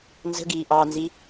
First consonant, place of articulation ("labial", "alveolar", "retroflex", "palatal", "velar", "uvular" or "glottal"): alveolar